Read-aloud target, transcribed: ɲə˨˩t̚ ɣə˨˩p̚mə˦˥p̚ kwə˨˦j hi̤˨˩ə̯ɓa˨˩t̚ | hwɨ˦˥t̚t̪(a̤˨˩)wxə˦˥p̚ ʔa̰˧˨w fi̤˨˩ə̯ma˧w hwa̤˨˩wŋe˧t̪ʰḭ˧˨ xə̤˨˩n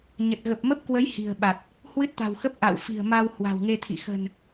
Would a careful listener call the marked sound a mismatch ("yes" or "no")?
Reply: no